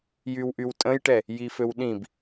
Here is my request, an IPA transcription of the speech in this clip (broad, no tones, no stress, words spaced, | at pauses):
jywʔywtʼə̃jʈɛ | jiføwɗĩb